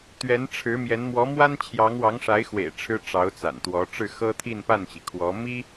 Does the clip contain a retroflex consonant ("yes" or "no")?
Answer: yes